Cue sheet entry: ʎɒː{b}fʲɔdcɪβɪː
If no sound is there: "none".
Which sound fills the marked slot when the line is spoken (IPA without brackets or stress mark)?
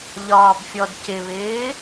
b